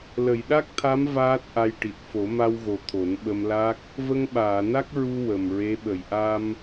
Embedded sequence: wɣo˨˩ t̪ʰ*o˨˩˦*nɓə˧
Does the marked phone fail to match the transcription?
no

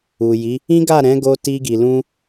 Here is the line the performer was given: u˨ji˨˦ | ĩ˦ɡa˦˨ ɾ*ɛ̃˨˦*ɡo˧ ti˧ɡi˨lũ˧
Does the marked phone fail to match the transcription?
no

